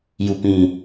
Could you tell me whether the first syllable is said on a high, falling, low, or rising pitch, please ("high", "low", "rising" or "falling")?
low